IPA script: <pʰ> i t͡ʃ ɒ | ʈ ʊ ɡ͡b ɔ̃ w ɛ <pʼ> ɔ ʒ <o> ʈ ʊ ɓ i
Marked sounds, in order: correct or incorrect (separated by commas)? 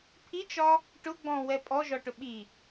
correct, correct, incorrect